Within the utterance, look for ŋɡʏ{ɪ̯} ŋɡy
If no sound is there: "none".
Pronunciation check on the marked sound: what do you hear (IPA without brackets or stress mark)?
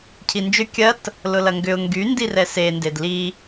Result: ʊ̯